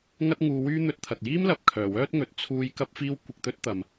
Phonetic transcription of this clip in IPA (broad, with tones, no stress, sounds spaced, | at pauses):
ŋ ɐ˥ t̚ ŋ uː˨˧ w yː˥ n̪ ɵ˧ t̚ t̪ʰ ɐ˨ t̚ j iː˥ m l ɐ˨ p̚ kʰ œː˨˩ w œː˥ t̚ ŋ ɵ˨˥ t̚ t͡sʰ uː˥ j k ɐ˥ p̚ f iː˥ w kʷ ɪ˧ k̚ t̪ ɵ˥ t̚ t̪ ɐ˨ m